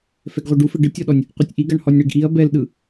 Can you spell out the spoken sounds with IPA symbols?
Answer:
fɛɡʁʷeɖufe ɖɯtʲɔɗɔnʲ | qʷetʲʔiɡaɳ hɔnʲɳeɡʔiɐ̯ bɛlɗɯ

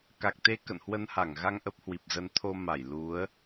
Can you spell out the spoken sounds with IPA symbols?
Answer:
ka˨˩k̚t̪e˧ kə̰˧˨nhwə˧nha˧˩ŋɣa˧ŋ ʔə˦˥p̚hwi˨˩p̚zə˧n t̪ʰo˧ma˧˩j lu˨˦ə̯

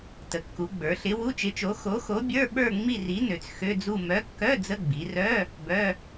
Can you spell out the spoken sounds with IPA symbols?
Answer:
tə˩˧kːu˩˧ɡ͡bə˞˩˧ɬɪ˨˥ wu˧˥˧t͡ʃɪ˨˥t͡ʃo˨˥ xo˨˥xo˨˥bʲə˞˧˥˧ ɓə˞˥˧ ŋ͡mi˥˧ri˨˥nø˩˧t͡s xø˧˥˧d͡zu˥˧ mœ˨˥kːœ˧˥˧ d͡zə˧˥˧ɡ͡bi˩˧rœ˧˥˧ | bœ˧˥˧

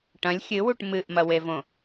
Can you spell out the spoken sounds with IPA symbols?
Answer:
ʈɐ̃lʲ xʲɨwuʈ mɨʔmɐwevõ

